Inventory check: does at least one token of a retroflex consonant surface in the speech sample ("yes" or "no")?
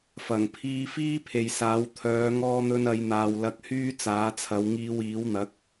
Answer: no